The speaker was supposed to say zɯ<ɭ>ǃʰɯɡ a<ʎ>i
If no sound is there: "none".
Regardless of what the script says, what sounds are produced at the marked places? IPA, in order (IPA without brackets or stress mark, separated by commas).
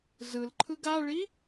l, ɭ